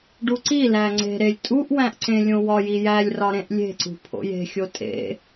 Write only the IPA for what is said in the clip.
ɖ u ǀ i l æ ŋ͡ǀ e̤ ɾ e lʲ tʼ u ʔ w æ̃ ʔ ǀ ẽ lʲ õ w ɒ j i j æ lʲ r ɒ ɾ ẽ ʔ lʲ e̤ ǀ ṳ pʰ o̰ j e̤ xʲ o tʼ ḛ

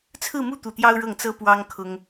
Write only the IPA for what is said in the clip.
t͡sʰ ɹ̩˥˧ m u˥˧ t̪ u˥˩ t̪ j ɑ˥ ʊ̯ ɻ ɤ˥˩ ŋ t͡s ɤ˥ p w ɑ˥ ŋ kʰ ʊ˥ ŋ

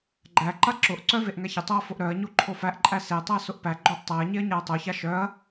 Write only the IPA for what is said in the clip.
ɡ͡ǃ æ ǃ a ǁ ʊ ʔ ǀ œ v e ʔ ŋ a ç ə tˤ o ɐ̯ f ʊ ʔ ɾ œ ɐ̯ ɲ o ǃʰ o f æ ʔ ǃʼ æ s e tˤ æ s ʊ ʔ p æ ɡ͡ǃ œ ʔ tˤ æ ɐ̯ ɲ e ɐ̯ ɲ a ɐ̯ tˤ o ç a ʃ œ ɐ̯

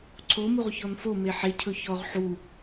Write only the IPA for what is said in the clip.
ǀʰ o m u ʁ ç ɔ n f o m e ħ e cʰ ɵ ç ɔ ʁ ħ u

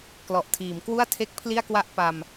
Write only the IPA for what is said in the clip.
k l ɔ˨˩ ʔ tʰ iː˩˦ m k w u˥˩ a̯ tʰ e˥˩ k̚ pʰ l i˥˩ a̯ k w a˥˩ ʔ p a˧ m

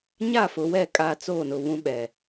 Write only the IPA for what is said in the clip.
ɲ a˦˨ f ʊ˨ w ɛ˦˨ kʼ aː˨ t͡s oː˦˨ n ʊ˨ β ũ˦ ɓ ɛ˨

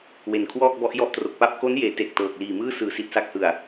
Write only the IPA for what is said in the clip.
w e˨˩ n kʰ w ɔː˥˩ k̚ b ɔ˦˥ ʔ j ɔ˦˥ ʔ t r o˨˩ k̚ p a˥˩ p̚ k o˦˥ n j eː˩˦ t e˨˩ k̚ t ɤː˨˩ k̚ l iː˨˩ m ɯː˥˩ s ɯː˩˦ s i˨˩ t̚ s a˦˥ k̚ h ɯ˨˩ a̯

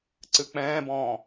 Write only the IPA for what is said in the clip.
ǀ ɨ k͡p ɛ̃ː b ɔ̃ː

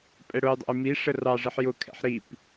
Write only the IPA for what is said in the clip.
pʼ ɛ ɽ ʊ j dˤ ɛ̰ j m i ʂ ə r ɑ ʐ ɪ ħ j ʊ kʰ ɛ̰ ħ ɾ i p

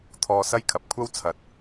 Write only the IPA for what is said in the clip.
t̪ʰ ɔː˧ s ɐ˥ j kʰ ɐ˨ p̚ kʷʰ ɐ˥ w t͡sʰ ɐ˨˥ t̚

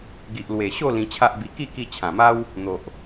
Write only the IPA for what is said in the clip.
ɡ i˨ ʔ l w e˨˩ ɕ o˥˧ l ĩ˧ t͡ɕʰ a˦ ʔ b i˧ k i˥˧ k i˧ t͡ɕʰ ã˨˩ m a˦ w | n̪ o˨ ʔ

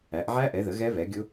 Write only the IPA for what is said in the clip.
æ˨˦ ʔ ʕ æ˦˥ ʔ ɛ˨˦ ð ə˨˦ ɣ ɛ˦˥ β ɛ˨˦ ɡʲ ʊ˦˥

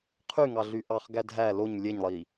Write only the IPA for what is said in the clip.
qʰ y ŋ ɑ ɮ y ʔ ɑ χ ɡ æ dʱ æ l o ɲ lʲ e ɲ lˠ i

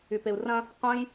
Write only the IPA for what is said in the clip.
y p e u̯ r ɐ̃ | qʷ ə̃ j

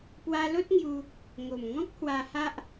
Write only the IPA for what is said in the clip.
p w a˧ l o˦ t̚ ŋ j u˧ | ŋ o˨˩ m ŋ ɔ̃˦ k̚ h w a˧ h a˦ ʔ

